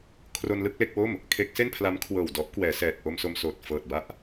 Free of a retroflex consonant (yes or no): yes